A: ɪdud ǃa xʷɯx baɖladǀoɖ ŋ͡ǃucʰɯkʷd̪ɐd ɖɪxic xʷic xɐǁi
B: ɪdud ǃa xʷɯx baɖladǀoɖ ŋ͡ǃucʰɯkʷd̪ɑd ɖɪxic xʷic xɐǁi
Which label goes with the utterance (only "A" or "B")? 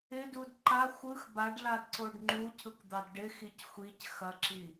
B